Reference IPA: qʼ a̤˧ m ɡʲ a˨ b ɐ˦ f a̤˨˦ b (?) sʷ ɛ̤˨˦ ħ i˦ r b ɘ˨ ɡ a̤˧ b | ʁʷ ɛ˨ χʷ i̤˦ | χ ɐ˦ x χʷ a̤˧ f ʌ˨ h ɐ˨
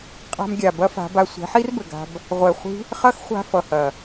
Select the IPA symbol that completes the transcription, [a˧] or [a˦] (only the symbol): a˧